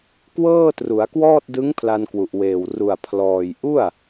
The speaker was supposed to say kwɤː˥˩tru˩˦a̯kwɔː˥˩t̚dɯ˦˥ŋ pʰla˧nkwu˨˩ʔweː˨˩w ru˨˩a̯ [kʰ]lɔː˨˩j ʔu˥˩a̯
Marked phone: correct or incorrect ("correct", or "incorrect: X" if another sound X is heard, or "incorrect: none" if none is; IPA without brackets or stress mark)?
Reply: incorrect: pʰ